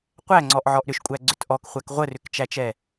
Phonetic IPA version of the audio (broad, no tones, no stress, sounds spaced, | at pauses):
qʷ æ ŋ͡ǀ ɔ ʔ ʕ ɔ ʔ ɾ ʏ ʃ kʷʼ æ ɡ͡ǀ ʏ t ʔ ɔ k χʷ æ k ʁʷ ə r ʏ k t͡ʃ æ t͡ʃ ɛ